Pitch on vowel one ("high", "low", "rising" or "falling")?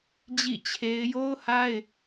falling